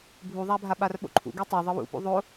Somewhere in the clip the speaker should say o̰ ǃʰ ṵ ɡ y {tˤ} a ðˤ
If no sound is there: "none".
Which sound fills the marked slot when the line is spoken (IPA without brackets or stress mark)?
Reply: tˤ